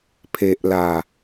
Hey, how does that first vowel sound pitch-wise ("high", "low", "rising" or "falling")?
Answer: low